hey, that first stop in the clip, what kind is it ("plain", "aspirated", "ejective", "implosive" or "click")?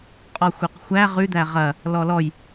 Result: ejective